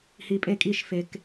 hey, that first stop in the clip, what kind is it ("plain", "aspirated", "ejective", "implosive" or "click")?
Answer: ejective